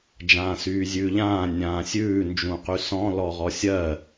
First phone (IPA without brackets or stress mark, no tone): d͡ʒ